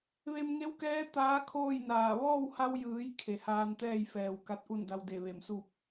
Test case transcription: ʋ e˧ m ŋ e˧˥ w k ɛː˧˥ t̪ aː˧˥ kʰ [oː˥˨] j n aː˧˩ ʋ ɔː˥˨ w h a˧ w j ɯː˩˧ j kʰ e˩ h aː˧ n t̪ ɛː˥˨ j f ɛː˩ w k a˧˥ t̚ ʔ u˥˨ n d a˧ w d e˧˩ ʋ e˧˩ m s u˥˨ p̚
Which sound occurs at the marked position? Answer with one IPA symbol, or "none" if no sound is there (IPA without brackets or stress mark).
oː˥˨